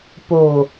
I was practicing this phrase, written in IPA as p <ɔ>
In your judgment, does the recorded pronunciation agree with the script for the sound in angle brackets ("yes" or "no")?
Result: no